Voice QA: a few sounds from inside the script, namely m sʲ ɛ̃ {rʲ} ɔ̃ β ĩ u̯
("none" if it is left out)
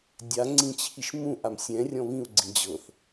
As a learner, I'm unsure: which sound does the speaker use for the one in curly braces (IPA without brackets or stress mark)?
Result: rʲ